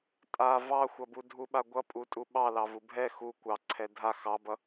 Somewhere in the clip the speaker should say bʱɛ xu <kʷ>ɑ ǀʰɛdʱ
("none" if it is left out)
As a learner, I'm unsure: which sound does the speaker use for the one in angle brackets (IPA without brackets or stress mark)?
kʷ